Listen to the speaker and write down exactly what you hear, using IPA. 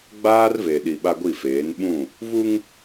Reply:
ɡ͡b aː˦ r v e˨ ɗ i˨ ɓ a˦ ɡʷ i˦˨ f eː˨˦ n ɓ ũ˦˨ | v u˦ ŋ

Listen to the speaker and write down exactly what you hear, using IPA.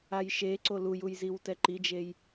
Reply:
a j ʃ e ǀ o l u j u j z i w t ɛ ǃ i d͡ʒ e j

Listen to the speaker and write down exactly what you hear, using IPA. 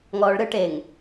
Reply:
ŋ ɔː ɭ ɾ ɯ ʈ e ŋ

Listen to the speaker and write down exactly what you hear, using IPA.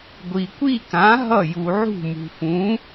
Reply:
ɡʷ i˨ kʷ i˥˧ k ã˨˥ ɦ ʌ˥˩ j u˨ ʕ ṳ˥˩ m ṳ˨ f ũ˨˥

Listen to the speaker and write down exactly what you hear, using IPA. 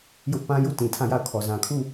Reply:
j ʊ˦ ʔ p ã˦ j u˦˨ t ĩ˨ tʰ ã˦˨ j a˦˨ ʊ̯ kʰ ɔ˨ z ã˨ kʰ u˦˨

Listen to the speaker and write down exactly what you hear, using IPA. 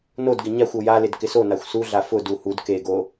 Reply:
n o d ɡ ɪ ɲ a xʷ o j a l ɪ d k ɪ s o n a xʷ s u ɮ a f ʊ d u h u d k e ɡ o

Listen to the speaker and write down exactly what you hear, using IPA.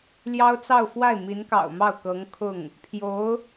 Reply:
l j ɑ˥ ʊ̯ t͡s ɑ˥˧ ʊ̯ f w a˥˩ ɪ̯ m i˧˥ n k ɑ̰˨˩ ʊ̯ m ɑ˥˩ ʊ̯ k ɤ˧˥ ŋ kʰ ʊ˥˩ ŋ | pʰ j o˧˥ ʊ̯

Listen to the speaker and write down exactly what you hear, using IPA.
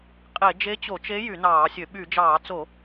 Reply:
qʼ e˧˩˧ d͡ʒ e˧˥ t͡ɕ o˧˩˧ t͡ʃ e˧˥ j y˧˩˧ n ɑː˧˩˧ sʲ ø˧˩˧ ɓ y˧˩˧ d͡ʒ ɑː˧˩˧ t͡s o˧˩˧

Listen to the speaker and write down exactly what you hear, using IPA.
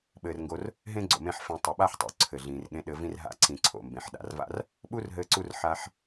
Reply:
ɓ ɘː˨ r ŋ ɡ o˧ r | ɦ ẽ˦ ɡ͡ǀ o̰˨ m ẽ˧ ħ f ẽ˨ tˤ ə˨ ɓ a˦ ħ tˤ o̰˨ ǀʰ ɘ˨ ɮ ĩː˨ r ɠ ẽ˧ ɗ ɘ˧ v ĩ˦ r ɦ a̰˧ ǀ ĩ˨ ǀʰ o̰˨ m b ẽ˨ ħ ɗ a̰˨ r v a̰˦ r | ɓ u˦ r ɦ ɘː˧ ǀ u˧ r ħ a˧ ħ

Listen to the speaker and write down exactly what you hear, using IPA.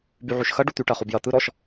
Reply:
b y ʕ y ʃ x ɐ ɖ u t̪ y ʈ ɐ χ u b j ɐ t̪ ɯ ɾ ɔ ʃ

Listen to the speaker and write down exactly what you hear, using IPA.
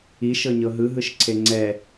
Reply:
i ʃ ɤ ɲ ɤ ɦ ɯ ɦ ɯ ʃ ǀʰ e ŋ͡ǀ ɛ

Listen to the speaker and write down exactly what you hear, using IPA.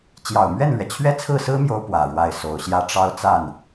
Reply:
t͡ɕ j ɑ˨˩ ʊ̯ m ɥ ɛ˥˩ n l ɥ ɛ˩ t͡ɕʰ ɥ ɛ˥ t͡sʰ ɹ̩˥˩ s ɹ̩˥ m j o˧˥ ʊ̯ p w ä˨˩ ɻ w a˥˩ ɪ̯ s o˨˩ ʊ̯ ɕ j ä˥˩ ʈ͡ʂ ɑ˥ ʊ̯ t͡s a˥˩ n

